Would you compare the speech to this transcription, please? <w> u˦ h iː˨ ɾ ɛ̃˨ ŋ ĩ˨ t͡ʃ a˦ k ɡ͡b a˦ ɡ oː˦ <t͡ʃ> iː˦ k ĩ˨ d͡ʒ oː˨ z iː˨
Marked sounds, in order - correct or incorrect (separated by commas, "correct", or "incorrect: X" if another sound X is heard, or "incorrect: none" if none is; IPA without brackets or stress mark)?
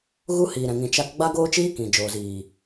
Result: incorrect: ɣ, correct